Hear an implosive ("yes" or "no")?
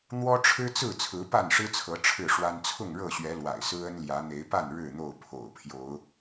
no